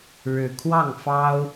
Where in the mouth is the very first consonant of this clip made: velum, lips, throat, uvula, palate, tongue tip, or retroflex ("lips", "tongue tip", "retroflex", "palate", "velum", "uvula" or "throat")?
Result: retroflex